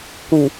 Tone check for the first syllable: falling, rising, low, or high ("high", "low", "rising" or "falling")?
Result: low